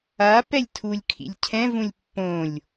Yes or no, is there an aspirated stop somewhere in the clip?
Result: yes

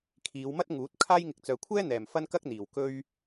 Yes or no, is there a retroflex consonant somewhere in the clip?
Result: no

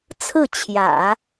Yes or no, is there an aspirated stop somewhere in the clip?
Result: yes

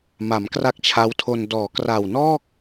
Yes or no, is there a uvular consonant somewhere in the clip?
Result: no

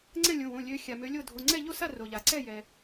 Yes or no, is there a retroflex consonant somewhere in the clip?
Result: no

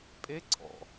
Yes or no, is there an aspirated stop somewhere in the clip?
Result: yes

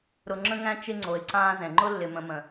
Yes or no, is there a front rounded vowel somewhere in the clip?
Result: no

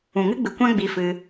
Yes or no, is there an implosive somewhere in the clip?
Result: no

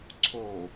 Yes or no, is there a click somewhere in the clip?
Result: yes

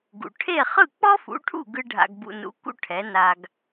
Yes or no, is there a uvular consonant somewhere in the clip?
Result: yes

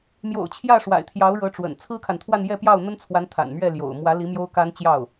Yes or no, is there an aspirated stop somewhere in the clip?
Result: yes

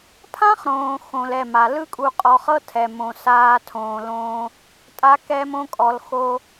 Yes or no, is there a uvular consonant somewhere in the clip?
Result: yes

